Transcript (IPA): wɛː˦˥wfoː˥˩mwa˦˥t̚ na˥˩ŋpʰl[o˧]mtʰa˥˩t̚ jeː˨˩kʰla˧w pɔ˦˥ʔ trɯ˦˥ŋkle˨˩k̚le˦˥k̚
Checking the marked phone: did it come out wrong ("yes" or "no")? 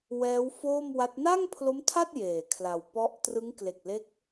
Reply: yes